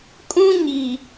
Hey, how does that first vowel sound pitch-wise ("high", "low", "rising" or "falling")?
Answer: high